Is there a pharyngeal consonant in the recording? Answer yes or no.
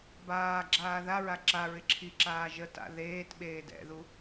no